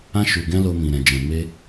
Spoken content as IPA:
ã˧ ʃ u˨ ɡ ɛ̃˧ l o˧ m ĩ˨ ɾ ɛ̃˨ d͡ʒ ɛ̃˨ m e˧

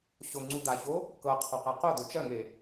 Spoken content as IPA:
ɕ o ŋ͡ǀ u d̪ a ç o | k ɤ qʰ ɔ q æ q o d̪ o t͡ʃ ɜ ŋ e

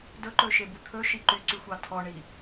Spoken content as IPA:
d ɵ ǃ ɵ ʃ e b u t̪ʰ ɵ ʃ i ǃ y ǀ y xʷ ɑ tʰ ɔ ɳ i

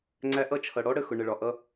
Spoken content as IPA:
ŋ͡ǀ æ˧ ʔ ʌ˥˩ t͡ʃʰ ʌ˩ ɽ ɔ˥ ɽ ə˥˩ x ʊ˩ ɳ ə˩ ɭ ɒ˩ ʔ ʌ˧

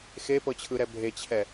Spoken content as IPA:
x e p ɤ t͡ɕʰ ɯ ɾ ɛ bʱ e t͡ɕʰ ɛ

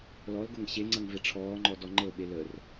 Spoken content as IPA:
l ɔ l ɡ ɤ ŋ ɕ e ŋ͡ǀ ʌ ŋ v e ʈ͡ʂʰ ɔː ŋ͡ǃ ɔ d ɔ ŋ͡ǃ ɤ ɓ e l ə r

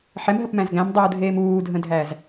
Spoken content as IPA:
ħ ɛ m ɦ ə p m æ̃ z ɡ æ̃ m dˤ uː dʱ eː m uː dʱ ə̃ dʱ æ z

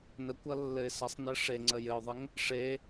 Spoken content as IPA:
n ə kʷ ʌ lː ɘ ɪ̯ s ʌ sˤ n ɘ ʂ e ŋ͡ǀ ə j ɘ ʊ̯ ðˤ ɘ ŋ | ʂ e

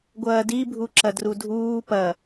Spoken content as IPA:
ɡʷ ɐː d i bʱ u ǁ ɐ d r u dʱ uː p ɐ

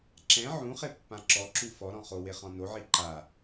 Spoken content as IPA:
ǁ ɛ̃ ʕ ũ χ e pː ã ǁ ɔ ǁ u f ɔ ɾ ɔ̃ χ o w e χ ɔ̃ n o ʕ i ǃ a

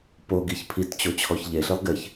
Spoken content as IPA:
p o ɡ i ç pʰ i t t͡ɕ o t͡ɕʰ ɔ ç ʎ e ɬ i lˠ ɡ ɪ ç

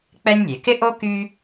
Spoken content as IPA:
k͡p ɛ˥ nʲ lʲ e˩ k ɪ˥ ʔ o˥ k y˥

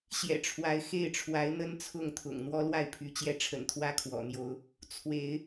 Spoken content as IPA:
ɕ j ɛ̰˨˩ ʈ͡ʂʰ w a˨˦ ɪ̯ x e˥˨ ɪ̯ ʈ͡ʂʰ w a˨˦ ɪ̯ n̪ ə˦ n t͡sʰ ʊ˥˨ ŋ t̪ʰ ʊ̰˨˩ ŋ n̪ w ɔ˦ l w a˥˨ ɪ̯ pʰ y˨˦ t͡ɕ j ɛ˥˨ ʈ͡ʂʰ ə̰˨˩ n t̪ʰ w ä˦ kʰ w ɔ̰˨˩ n̪ j o˨˦ ʊ̯ | t͡sʰ w e˨˦ ɪ̯

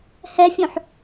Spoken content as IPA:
h ɛ fʲ õ ħ

